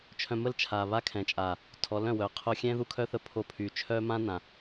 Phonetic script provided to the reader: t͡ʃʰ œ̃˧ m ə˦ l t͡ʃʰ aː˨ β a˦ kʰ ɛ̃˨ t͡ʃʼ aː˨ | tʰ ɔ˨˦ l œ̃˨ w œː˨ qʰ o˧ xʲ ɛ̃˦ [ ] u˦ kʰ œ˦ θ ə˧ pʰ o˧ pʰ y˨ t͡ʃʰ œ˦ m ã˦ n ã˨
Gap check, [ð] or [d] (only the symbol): ð